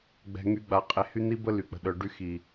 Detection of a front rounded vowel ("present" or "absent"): present